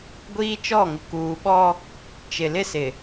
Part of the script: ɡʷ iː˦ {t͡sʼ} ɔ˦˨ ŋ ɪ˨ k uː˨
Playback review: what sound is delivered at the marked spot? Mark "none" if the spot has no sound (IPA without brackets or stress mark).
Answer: t͡ʃ